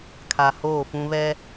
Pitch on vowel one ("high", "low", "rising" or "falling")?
low